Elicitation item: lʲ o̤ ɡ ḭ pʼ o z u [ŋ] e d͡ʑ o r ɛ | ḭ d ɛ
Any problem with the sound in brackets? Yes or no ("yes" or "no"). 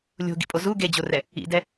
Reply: yes